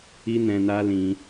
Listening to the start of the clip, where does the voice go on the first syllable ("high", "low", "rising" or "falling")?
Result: high